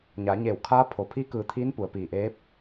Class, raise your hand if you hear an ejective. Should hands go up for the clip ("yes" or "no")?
no